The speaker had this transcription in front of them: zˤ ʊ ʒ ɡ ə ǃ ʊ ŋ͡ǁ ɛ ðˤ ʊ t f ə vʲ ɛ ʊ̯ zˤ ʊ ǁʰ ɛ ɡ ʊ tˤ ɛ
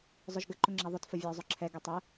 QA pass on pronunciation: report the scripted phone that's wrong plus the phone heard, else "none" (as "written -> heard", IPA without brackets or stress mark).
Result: none